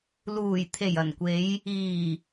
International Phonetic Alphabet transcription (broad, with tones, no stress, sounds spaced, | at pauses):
l uː˨˩ j t̪ʰ e˨˩ j ɐ˨˩ n kʷ e˨˧ j | iː˨˩